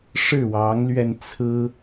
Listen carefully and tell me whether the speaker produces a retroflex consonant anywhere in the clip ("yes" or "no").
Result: yes